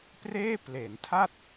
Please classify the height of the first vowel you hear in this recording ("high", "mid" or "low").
mid